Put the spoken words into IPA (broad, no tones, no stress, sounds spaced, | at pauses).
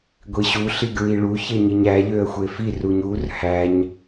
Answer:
ɡʷ i ɕ u ɬ i ɡ ɹ i ɭ u ç e ɲ i ɲ æ ʎ ø ə̯ xʷ e f i r u ɲ u r h æ ɲ